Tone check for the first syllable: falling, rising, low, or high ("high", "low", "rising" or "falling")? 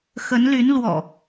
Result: rising